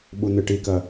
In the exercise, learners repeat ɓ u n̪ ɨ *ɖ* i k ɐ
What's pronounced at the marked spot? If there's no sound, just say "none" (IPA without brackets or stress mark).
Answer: ʈ